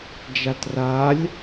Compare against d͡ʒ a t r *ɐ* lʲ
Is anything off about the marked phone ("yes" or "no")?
yes